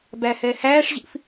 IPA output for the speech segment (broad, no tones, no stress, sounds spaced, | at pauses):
b æ h ɛ h æː ʂ ʑ ḭ f